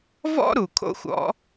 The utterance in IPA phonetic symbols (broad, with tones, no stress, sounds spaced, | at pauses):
v ɔ̰˥ ɾ u˩ kʰ o̰˥ xʷ ɔ̰˥